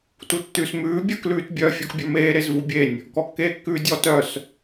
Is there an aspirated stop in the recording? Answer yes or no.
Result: no